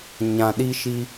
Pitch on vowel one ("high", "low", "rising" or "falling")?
low